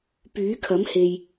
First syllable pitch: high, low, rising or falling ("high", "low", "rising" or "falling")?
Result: rising